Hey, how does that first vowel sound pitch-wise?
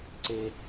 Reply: high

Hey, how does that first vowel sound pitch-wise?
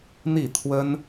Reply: falling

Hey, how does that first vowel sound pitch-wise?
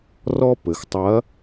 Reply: high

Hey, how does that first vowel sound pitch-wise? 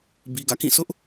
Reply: low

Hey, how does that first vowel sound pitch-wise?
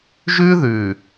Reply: high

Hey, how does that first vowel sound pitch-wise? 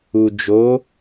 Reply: low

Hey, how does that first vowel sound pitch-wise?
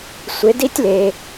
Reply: rising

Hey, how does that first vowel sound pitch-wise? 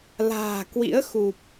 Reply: low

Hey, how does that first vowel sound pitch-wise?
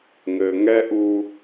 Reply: low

